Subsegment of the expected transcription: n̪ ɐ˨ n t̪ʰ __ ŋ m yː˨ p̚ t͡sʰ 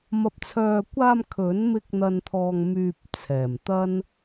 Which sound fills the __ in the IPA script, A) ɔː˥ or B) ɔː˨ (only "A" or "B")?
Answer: B